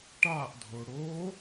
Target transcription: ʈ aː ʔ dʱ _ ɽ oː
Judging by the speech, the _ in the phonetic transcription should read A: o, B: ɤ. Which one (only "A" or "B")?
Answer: A